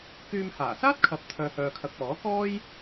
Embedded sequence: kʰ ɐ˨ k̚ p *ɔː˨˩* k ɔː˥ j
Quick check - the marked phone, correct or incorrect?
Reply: incorrect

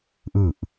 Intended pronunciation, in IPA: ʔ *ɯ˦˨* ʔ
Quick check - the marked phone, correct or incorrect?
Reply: correct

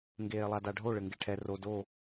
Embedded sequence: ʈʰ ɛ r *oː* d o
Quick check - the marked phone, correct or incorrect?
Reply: incorrect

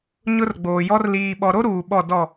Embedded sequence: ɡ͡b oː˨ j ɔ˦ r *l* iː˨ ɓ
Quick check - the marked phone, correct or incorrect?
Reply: correct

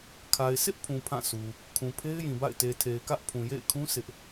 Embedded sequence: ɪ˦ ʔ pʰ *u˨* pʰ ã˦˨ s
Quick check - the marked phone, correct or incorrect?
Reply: incorrect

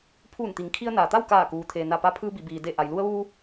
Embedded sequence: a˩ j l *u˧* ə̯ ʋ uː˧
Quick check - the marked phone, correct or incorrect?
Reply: correct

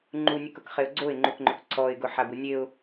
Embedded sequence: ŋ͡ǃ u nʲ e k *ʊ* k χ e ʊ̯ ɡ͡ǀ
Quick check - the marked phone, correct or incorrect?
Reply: correct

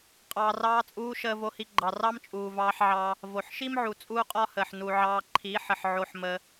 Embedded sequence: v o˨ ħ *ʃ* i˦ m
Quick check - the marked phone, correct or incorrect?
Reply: correct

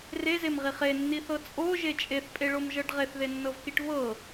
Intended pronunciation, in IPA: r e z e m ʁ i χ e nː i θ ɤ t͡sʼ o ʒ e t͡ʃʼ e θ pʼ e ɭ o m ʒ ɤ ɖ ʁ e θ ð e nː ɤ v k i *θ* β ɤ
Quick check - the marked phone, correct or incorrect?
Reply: incorrect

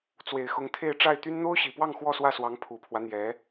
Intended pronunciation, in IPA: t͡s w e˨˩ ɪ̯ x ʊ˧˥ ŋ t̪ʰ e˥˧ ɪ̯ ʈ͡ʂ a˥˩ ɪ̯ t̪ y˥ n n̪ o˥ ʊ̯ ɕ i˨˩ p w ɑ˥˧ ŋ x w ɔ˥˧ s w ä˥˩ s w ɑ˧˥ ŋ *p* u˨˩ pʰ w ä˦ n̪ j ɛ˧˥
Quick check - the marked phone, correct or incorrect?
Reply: incorrect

